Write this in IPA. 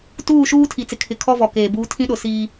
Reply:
tuː˦˨ʃuː˦ tʰi˨t͡sɪ˨kʰɪ˨kʰɔ˦ vɔ˨keː˨buː˦ tʰĩ˦ɗʊ˨ siː˦

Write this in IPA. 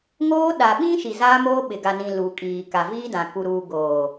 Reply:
ŋoː˦ ɗa˨ɓĩ˦ʃi˨ zaː˦moː˦ɓɪ˨ ɡa˨nĩ˨ lu˨kʼiː˨ ka˨viː˦dã˨ ku˨ɾuː˨ ɡoː˨

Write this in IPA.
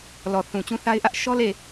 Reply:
lɔ˨θũ˨t͡ɕũ˦θa˦ɪ̯ ʔä˦ʔ ʃɔ˦le˦˨

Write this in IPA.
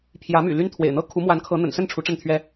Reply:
pʰjä˨˦my̰˨˩ ly˦nt̪ʰwḛ˨˩ɪ̯n̪ɤ˥˨ kʰu˨˦mwa˨˦nkʰɤ˨˦ n̪ə̰˨˩nsə˥˨n ʈ͡ʂʰu˨˦ʈ͡ʂə˥˨nt̪ʰɥɛ˦

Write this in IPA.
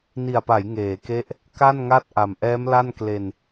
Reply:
ni˨˩a̯pa˩˦j ŋeː˩˦ke˦˥ʔ | ka˥˩nŋa˥˩t̚ ʔa˨˩m ʔɛː˦˥mla˥˩n kle˧n

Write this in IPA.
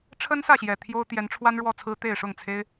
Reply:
ʈ͡ʂʰə˦nsä˥˨ɕjɛ˨˩ t̪ʰjo˦ʊ̯t̪jɛ˨˦n ʈ͡ʂʰwa˦nɻwɔ˥˨t͡sʰɹ̩˦ t̪e˥˨ɪ̯ ʂʊ˥˨ŋt͡sʰe˦ɪ̯

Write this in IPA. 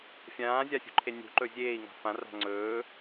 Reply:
fʲãːzʲasʲṳǃʰe nʲṳǃɵ zʲeːi̯ŋa̤ fãra̤ ŋ͡ǀɵː

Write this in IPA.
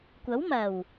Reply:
kʷɐ˨˥wmɐ˨˩w

